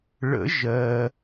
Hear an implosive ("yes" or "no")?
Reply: no